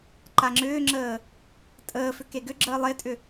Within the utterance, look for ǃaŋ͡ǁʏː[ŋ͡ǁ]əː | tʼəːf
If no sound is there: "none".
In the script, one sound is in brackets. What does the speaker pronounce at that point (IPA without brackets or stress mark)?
ŋ͡ǁ